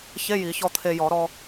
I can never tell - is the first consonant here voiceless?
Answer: yes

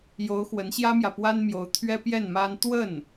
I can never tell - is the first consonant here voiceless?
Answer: no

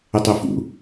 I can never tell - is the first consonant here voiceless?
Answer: yes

